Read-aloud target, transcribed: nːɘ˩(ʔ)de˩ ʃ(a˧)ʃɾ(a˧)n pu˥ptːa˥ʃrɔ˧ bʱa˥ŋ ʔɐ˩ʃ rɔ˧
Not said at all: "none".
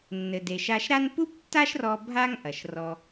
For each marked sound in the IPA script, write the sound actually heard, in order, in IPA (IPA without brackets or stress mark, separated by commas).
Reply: none, a˧, a˥